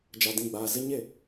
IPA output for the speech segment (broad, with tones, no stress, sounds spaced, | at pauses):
d͡ʒ a˨ d ĩ˦˨ ɡ͡b aː˨ z ɪ˦ ɲ e˦˨